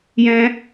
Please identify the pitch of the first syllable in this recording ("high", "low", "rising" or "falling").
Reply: high